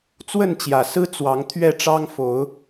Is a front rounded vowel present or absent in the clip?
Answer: absent